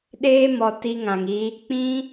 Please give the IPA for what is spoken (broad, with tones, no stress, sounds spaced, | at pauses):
ɗ eː˦ m ɔ˨ t i˦ ŋ ã˨ ŋ i˧ | k͡p ĩ˦